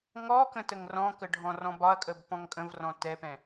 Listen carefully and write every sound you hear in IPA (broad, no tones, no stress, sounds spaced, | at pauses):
ŋ ɔ k ə̃ t ə ŋ r ɔ̃ k ə ɖʱ ɔ̃ r ɔ̃ b ɒ ɐ̯ kʼ ə b p ɔ̃ ŋ kʼ ə̃ v r ɔ̃ t ɛ p ɛ̃